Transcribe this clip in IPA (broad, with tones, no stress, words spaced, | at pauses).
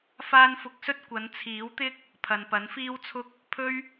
faː˥n fʊ˧k̚sɵ˥t̚ kʷɐ˨˧nt͡sʰiː˨˥wt̪ɪ˥k̚ | pʰɐ˨npɐ˨˥nfiː˥wt͡sʰʊ˥k̚ | pʰɵ˥ɥ